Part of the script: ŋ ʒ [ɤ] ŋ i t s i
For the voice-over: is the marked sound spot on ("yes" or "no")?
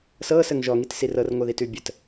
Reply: no